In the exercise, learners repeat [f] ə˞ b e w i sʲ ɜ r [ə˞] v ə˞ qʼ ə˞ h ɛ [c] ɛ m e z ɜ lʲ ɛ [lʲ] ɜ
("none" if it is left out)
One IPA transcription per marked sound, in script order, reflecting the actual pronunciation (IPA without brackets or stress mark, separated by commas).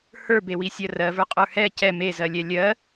h, ɜ, c, lʲ